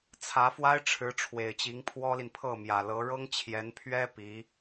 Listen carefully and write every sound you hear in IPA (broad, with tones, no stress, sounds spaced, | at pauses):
t͡sʰ ä˧˥ f w a˥ ɪ̯ ʈ͡ʂʰ ɻ̩˧˥ ʈ͡ʂʰ w e˨˩ ɪ̯ t͡ɕ i˧˥ ŋ pʰ w ɔ˥ l i˨ n pʰ ɤ˥˩ m j ä˨˩ l ɤ˧˥ ɻ ɤ˥ ŋ t͡ɕʰ j ɛ˧˥ n pʰ ɥ ɛ˥ p i˧˥